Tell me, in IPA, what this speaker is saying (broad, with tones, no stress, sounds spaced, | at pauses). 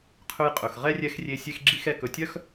qʰ ɵ˧ j qʼ ɵ˨ x ʁ ɛ˦ rʲ ɛ˧ x rʲ e˧ sʲ e˦ x ɡ͡ǁ i˦ x ɛ˧ k ɵ˨ tʲ œ˦ x